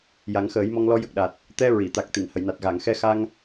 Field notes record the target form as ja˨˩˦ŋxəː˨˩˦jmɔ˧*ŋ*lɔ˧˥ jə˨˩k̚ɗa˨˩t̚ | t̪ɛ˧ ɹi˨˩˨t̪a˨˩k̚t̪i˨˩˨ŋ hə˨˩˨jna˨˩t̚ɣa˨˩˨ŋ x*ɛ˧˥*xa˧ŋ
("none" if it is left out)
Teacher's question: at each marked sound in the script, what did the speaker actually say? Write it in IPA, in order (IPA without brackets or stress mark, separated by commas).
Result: ŋ, ɛ˧